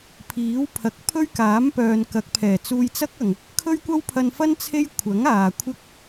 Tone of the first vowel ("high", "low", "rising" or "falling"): rising